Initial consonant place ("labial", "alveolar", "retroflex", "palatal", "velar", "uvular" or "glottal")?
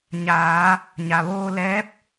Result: palatal